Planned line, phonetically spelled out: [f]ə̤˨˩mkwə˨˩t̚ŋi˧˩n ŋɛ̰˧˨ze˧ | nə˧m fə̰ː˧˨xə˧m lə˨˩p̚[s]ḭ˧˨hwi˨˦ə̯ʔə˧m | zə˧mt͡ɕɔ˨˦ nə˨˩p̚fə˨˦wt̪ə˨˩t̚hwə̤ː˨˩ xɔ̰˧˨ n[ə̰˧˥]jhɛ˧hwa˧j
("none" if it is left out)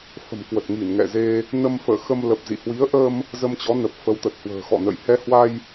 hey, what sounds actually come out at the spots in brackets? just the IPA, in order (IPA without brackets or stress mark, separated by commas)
f, z, ə̰˧˨